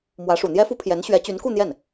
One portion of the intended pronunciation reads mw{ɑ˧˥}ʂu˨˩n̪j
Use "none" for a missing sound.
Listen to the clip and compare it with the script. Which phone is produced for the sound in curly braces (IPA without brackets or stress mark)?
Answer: ä˧˥